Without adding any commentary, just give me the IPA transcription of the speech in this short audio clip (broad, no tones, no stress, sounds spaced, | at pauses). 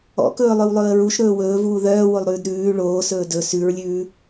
ɔ̰ k ɵː lˠ ɵ w lˠ ɵː ə̯ ɹ u ʃ ɾ ɵː w ɵː v uː ð œː w o lˠ ɾ ʉː d ɾ ʉː ɭ oː s ɵː d ɵ s ʉ ɹ lʲ ʉː